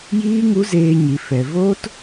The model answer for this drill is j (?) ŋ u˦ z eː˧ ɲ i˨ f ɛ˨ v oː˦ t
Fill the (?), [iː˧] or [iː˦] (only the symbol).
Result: iː˦